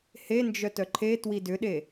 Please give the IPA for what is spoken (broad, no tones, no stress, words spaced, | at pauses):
hend͡ʒœ tœǃʰetwi dʏɗe